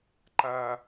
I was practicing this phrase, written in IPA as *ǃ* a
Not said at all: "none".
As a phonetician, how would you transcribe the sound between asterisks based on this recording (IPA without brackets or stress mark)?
ǃ